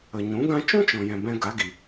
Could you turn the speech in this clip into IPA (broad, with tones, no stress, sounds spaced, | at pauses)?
ə˨ ɲ ũ˨˦ ɡ ã˦ t͡ʃ ũ˦ t͡ʃ ɔ̃˨ j ɛ̃˨ b ɛ̃˧ ɡ a˨˦ ɡ i˨